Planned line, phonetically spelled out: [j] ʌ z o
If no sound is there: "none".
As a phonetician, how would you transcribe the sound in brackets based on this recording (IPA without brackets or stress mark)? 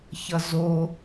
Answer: ç